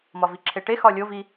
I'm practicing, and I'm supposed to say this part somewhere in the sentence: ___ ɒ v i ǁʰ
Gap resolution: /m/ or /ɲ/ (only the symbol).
m